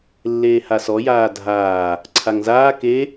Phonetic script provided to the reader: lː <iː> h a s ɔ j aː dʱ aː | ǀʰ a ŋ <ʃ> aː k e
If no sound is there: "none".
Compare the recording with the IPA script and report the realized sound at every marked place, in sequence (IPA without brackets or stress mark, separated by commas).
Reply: eː, z